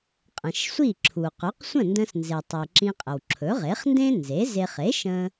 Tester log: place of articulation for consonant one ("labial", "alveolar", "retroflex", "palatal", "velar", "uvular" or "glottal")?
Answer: uvular